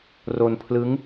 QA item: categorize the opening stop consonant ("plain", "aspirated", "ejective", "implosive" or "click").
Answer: aspirated